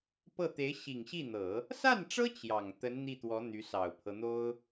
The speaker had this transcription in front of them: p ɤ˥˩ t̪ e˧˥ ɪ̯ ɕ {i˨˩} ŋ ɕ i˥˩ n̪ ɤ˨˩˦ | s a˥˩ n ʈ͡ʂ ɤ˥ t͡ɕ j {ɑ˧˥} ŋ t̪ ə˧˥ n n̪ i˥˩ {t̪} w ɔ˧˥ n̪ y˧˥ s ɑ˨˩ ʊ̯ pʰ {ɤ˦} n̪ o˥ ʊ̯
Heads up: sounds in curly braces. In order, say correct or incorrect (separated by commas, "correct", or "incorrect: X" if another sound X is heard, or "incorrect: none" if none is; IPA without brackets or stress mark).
correct, incorrect: ɑ˨˩, correct, correct